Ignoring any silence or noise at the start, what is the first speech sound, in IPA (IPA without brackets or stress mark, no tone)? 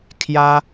kʰ